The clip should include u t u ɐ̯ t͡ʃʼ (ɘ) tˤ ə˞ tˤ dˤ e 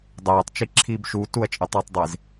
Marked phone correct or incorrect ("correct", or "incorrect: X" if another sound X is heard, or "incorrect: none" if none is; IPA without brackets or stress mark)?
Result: correct